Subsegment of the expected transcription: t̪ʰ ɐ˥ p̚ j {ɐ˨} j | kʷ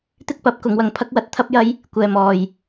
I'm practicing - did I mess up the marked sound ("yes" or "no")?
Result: yes